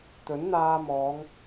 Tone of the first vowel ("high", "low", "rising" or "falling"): rising